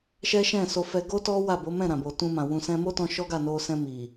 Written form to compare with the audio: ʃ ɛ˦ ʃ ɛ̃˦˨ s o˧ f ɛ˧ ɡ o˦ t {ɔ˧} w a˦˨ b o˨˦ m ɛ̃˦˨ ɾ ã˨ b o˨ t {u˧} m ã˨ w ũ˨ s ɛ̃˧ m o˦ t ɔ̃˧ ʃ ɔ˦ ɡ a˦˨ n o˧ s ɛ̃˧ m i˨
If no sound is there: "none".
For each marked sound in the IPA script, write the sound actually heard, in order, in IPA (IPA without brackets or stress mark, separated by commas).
ɔ˦, ũ˧